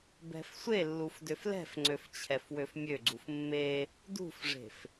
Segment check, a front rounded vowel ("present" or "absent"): present